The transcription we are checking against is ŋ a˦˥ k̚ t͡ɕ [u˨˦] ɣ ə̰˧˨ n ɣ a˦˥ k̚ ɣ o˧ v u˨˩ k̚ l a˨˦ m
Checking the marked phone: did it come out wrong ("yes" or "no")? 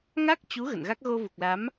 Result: no